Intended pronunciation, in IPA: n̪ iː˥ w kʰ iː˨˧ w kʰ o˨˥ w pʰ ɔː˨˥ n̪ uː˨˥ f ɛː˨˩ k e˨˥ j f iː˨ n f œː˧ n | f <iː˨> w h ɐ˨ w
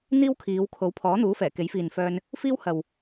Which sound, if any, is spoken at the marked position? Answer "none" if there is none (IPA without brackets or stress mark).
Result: iː˥